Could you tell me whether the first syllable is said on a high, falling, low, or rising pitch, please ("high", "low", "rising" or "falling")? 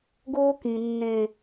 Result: high